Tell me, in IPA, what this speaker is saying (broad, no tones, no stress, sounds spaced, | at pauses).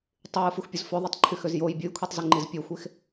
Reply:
tˤ y j ɯ f u x pʲ u z f ø ðˤ e tˤ ǃʰ y x ø z j o j bʲ ɯ j kʷʰ e tˤ z ɯ ŋ͡ǃ i z pʲ e xʷ e x